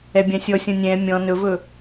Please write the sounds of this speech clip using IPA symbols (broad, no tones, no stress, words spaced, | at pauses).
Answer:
ɛbʲãsʲɔsʲɔ̃ nʲɛ̃ mʲɔ̃ nɵvɵ